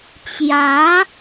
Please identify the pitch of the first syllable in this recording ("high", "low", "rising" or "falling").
rising